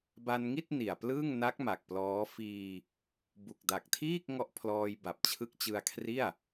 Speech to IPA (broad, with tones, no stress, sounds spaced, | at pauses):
b a˧ n ŋ i˥˩ t̚ n i˨˩ a̯ p l ɯː˥˩ ŋ n a˦˥ k̚ m a˨˩ k̚ p l ɔː˦˥ f iː˧ | b u˨˩ k̚ d a˨˩ k̚ tʰ iː˥˩ k̚ ŋ ɔ˦˥ ʔ pʰ l ɔː˧ j b a˨˩ p̚ t͡ɕʰ ɯ˦˥ k̚ t͡ɕ ɯ˧ a̯ kʰ r i˥˩ a̯